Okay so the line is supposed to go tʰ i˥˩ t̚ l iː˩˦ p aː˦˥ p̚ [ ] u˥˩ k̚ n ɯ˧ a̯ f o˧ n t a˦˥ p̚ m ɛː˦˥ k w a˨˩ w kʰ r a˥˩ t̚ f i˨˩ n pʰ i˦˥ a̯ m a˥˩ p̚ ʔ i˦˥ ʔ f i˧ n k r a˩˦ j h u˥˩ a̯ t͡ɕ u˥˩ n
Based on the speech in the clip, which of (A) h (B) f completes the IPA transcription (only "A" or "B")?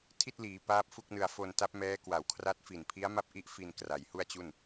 B